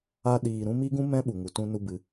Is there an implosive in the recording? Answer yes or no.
yes